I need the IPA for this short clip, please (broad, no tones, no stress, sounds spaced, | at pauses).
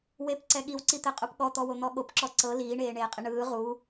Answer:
w e p ǀ ɛ ɠ i w ǀ i t̪ ɛ qʼ u p ɠ ɔ t̪ ɔ w o n̪ ɔ ɠ o p ǁ ɔ ǀ ɤ l iː ɳ eː ɳ eː qʼ i ɳ ɯː ʁ u